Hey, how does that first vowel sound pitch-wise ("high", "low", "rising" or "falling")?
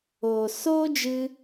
low